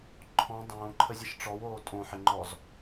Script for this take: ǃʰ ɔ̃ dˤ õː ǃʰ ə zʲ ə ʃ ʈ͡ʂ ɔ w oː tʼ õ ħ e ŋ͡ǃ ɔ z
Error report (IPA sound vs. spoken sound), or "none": none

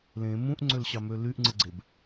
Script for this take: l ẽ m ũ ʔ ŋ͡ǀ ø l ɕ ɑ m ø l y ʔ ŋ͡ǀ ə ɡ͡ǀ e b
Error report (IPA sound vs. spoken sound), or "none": ə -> ɯ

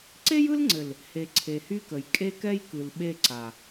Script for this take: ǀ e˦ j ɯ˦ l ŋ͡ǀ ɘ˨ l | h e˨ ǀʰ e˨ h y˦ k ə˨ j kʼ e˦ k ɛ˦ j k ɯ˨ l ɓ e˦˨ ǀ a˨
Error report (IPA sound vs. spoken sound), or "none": none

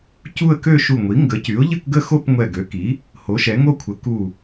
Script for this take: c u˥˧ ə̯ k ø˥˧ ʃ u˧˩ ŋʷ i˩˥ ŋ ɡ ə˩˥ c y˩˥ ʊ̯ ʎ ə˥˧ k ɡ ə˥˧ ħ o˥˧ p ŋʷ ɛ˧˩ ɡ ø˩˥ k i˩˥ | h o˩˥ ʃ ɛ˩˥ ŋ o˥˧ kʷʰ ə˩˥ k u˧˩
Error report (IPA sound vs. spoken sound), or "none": ħ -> x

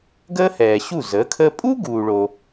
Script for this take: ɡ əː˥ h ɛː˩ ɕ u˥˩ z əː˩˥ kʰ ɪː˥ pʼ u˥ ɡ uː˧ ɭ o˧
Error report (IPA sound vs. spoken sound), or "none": ɪː˥ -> əː˥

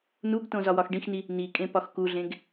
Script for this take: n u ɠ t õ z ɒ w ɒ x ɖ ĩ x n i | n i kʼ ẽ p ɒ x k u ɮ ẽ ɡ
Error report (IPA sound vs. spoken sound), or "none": ɠ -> ɡ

